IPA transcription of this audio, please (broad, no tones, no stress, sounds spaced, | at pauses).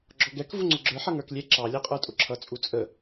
ɡ͡ǁ ɔ ɡ ɛ k v u ŋ͡ǀ ʊ ɡ͡ǁ ə˞ ħ ʌ ŋ ə˞ k lʲ ɛ ǁ ɑ lʲ æ qʼ ə˞ tʼ ʊ ǁʰ ʌ t͡sʼ u t͡sʼ ə